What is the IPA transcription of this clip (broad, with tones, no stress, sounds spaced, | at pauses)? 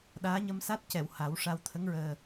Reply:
ɗ aː˧˥ ɲ ə˧ m s a˦˥ t̚ c ɛ˨˩˨ w h a˨˩˦ w ʂ a˧ w t̪ʰ ə˧˥ ŋ ɹ əː˨˩